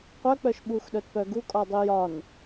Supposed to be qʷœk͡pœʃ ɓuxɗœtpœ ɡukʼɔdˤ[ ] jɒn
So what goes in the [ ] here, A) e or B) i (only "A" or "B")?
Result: B